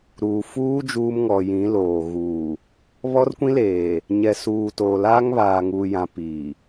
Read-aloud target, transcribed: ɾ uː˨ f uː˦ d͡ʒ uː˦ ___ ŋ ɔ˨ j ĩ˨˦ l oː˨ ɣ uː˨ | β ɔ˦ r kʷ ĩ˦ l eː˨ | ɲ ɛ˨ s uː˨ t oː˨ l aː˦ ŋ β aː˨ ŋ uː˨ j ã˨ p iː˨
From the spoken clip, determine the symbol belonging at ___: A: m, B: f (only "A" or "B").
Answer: A